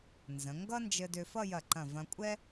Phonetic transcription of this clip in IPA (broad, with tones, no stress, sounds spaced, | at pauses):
n z ə̃˩˧ ŋ ɡ ʌ˥ n d͡ʒ ɘ˧ d ʏ˧ f ʌ˥˧ j ɐ˧˩ ǃ ɐ̃˧˩ v ɐ̃˧ kʷʼ ɛ˥